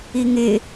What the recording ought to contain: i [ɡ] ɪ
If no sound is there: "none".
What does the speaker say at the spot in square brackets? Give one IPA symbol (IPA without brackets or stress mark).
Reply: ŋ